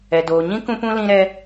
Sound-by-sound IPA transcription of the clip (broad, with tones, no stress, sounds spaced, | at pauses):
ɛ˨ d oː˨ ɲ ĩ˦ k ũ˧ p ũ˧ l ĩ˧ ɾ ɛ˧